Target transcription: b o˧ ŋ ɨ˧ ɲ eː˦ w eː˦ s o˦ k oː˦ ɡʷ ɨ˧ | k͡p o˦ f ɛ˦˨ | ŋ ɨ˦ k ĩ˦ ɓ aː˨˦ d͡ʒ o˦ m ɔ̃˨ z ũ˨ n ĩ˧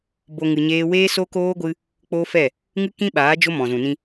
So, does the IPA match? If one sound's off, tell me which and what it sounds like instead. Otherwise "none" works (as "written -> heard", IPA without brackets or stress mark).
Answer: none